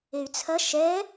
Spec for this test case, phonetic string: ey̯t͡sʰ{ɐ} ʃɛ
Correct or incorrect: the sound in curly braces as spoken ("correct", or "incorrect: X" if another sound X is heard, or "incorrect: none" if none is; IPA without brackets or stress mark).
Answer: correct